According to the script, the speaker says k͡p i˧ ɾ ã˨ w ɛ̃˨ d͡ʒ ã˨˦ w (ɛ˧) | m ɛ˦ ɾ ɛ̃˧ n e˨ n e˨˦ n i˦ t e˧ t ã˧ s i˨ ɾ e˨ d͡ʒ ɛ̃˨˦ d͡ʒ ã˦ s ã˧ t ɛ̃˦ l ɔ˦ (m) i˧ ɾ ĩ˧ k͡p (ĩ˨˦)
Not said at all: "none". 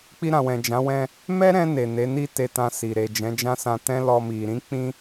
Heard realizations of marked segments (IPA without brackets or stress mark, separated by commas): ɛ̃˧, m, ĩ˧